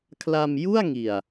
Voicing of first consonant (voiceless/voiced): voiceless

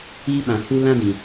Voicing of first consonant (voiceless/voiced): voiced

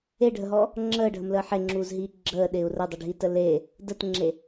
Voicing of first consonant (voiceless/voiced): voiced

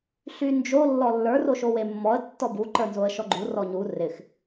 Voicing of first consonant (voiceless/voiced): voiceless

